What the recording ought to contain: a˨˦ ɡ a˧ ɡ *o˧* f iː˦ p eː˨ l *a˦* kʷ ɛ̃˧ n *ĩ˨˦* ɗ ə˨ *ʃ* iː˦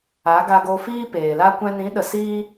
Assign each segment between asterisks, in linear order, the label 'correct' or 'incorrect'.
correct, correct, correct, incorrect

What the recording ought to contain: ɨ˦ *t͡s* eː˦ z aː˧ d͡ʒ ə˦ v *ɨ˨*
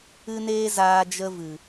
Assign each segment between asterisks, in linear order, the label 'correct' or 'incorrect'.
incorrect, correct

